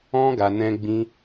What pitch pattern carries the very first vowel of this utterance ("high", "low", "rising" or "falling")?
high